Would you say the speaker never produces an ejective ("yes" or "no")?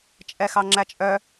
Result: no